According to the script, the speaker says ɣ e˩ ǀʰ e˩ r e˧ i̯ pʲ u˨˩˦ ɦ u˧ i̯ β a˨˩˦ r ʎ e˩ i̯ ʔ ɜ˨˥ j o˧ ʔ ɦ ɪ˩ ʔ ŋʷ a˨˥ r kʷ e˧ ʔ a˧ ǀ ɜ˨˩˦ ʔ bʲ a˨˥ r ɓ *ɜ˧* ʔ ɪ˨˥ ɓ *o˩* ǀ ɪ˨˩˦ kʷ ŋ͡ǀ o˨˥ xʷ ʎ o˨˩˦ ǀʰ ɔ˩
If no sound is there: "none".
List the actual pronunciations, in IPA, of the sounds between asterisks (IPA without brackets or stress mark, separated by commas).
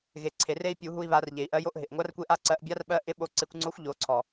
ɜ˧, o˧